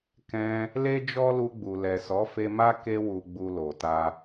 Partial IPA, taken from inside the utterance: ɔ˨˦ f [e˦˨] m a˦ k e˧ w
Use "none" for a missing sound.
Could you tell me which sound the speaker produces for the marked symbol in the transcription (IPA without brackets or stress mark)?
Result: e˧